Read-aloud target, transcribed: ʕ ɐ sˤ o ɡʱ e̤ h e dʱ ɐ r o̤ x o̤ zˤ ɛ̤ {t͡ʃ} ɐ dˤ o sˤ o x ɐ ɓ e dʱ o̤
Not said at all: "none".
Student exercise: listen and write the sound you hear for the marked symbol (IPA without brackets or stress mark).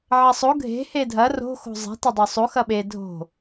t